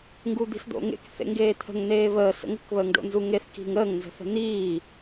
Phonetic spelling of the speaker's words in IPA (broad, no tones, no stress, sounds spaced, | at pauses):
ŋ ɡ u d̪ i̤ s d̪ o̰ ŋ ḛ k θ ḛ ŋ ɡ eː t̪ʰ ə̤ ŋ n̪ eː β əː s ə̰ ŋ ə̤ k β əː ŋ ɖ o̰ n z u ŋ e θ k i̤ ŋ əː ŋ n z ə̤ θ ə̤ n̪ iː